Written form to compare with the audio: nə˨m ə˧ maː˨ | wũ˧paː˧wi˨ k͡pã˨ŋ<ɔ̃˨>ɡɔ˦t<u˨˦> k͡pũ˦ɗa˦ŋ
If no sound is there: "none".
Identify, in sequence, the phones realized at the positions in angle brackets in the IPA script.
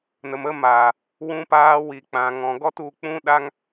ɔ̃˨, u˧

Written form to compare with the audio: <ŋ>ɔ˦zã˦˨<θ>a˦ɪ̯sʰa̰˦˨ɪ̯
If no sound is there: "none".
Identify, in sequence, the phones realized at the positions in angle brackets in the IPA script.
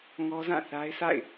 ŋ, θ

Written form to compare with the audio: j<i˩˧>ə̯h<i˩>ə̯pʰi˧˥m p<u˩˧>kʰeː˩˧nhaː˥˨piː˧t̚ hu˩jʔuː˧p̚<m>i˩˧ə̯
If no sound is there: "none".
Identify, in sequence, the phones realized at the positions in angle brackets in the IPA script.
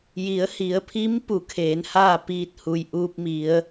i˩˧, i˩˧, u˩˧, m

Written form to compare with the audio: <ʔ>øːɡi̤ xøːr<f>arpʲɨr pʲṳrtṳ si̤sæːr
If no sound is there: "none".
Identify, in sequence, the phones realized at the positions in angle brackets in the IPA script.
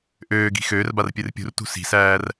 ʔ, b

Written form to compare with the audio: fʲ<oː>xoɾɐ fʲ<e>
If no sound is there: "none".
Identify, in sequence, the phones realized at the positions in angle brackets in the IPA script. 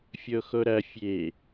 o, e

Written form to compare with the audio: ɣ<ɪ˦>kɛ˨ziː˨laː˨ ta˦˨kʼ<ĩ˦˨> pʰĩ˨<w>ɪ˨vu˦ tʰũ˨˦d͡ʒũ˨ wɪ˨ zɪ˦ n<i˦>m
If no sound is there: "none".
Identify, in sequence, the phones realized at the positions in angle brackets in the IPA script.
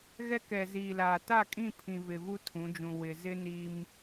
ɛ˦, ĩ˦˨, v, i˦

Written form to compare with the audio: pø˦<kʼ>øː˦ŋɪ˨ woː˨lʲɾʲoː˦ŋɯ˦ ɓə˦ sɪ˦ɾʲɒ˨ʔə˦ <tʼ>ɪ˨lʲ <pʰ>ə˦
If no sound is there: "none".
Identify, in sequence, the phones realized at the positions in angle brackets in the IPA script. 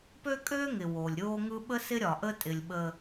kʼ, tʼ, ɓ

